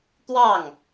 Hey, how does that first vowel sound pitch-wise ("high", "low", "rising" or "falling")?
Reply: falling